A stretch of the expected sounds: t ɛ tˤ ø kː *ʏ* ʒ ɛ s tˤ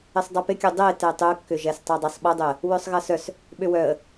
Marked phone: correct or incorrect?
correct